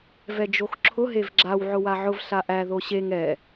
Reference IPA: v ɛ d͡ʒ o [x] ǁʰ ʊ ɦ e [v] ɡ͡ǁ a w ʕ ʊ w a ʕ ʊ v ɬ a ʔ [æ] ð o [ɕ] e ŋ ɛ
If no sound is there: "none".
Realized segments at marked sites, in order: x, v, æ, ɕ

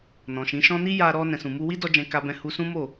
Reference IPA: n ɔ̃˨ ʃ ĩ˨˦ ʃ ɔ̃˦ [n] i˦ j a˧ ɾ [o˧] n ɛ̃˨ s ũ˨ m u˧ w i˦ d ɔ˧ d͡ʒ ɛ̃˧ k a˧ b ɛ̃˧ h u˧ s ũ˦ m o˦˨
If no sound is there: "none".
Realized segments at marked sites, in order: n, ɔ˧

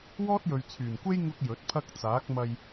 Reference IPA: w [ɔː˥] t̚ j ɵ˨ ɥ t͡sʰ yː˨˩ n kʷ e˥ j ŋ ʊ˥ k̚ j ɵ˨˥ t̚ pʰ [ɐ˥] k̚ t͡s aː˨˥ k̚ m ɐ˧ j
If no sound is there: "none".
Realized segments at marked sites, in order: ɔː˥, ɐ˥

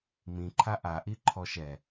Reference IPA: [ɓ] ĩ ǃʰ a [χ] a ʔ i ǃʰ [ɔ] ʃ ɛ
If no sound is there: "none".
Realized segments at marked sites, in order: m, ʔ, ɔ

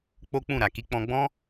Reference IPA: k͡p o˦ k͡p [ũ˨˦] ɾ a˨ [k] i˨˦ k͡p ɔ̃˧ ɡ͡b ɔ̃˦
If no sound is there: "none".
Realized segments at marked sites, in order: ũ˦˨, k

